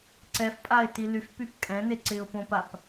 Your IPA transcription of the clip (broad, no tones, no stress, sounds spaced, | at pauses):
ǀ ɛ f pʼ a ɪ̯ t i l y f p y p kʼ ɛ̃ n e ǀ ɪ ʊ̯ p õ p a p